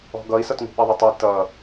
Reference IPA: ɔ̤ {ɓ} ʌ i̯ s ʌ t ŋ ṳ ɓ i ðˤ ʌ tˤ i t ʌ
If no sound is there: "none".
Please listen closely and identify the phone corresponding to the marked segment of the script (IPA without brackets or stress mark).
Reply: ɡ